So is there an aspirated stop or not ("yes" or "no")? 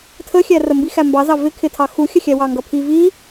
yes